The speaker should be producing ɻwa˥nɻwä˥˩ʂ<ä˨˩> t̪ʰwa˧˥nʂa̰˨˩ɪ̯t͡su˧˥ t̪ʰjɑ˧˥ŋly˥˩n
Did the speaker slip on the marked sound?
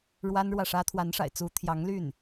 yes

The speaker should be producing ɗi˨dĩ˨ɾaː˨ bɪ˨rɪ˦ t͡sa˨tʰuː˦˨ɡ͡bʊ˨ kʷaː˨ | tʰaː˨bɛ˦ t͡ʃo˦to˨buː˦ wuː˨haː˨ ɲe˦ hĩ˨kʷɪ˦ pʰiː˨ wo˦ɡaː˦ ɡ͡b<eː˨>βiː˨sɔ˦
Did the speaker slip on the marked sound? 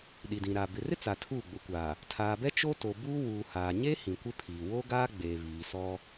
no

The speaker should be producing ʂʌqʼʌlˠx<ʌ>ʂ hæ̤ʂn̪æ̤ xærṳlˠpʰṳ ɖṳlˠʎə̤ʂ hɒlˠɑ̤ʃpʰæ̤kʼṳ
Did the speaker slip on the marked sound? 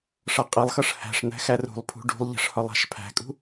no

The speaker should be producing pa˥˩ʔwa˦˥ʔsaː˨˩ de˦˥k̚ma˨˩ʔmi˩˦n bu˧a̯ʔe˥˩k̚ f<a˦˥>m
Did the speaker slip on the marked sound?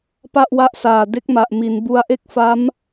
no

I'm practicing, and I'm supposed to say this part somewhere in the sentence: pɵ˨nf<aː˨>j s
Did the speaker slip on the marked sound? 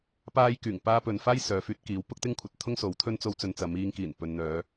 yes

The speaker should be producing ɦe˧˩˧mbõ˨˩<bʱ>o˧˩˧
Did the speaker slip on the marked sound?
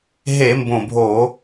no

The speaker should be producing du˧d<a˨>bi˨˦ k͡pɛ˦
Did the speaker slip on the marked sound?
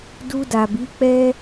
no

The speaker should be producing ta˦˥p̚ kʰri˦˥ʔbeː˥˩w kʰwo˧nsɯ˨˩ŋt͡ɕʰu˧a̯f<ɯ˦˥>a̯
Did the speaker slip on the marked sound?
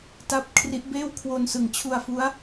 yes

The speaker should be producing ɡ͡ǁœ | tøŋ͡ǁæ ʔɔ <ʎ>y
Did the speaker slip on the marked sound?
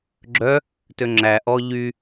no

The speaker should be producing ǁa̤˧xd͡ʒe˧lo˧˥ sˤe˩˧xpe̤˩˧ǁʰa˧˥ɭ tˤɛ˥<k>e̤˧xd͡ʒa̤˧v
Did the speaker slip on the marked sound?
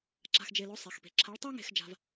yes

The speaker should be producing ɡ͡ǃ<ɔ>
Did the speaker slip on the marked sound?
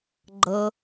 yes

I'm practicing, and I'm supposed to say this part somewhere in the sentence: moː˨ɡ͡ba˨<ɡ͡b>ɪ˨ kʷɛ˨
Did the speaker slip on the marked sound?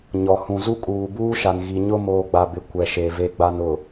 yes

